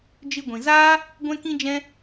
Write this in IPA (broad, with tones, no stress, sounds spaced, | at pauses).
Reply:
d͡ʒ ɨ˧ ɡʷ ĩ˨ z aː˦ | ɡʷ ɛ̃˦ k ĩ˦ d͡ʒ ɛ̃˦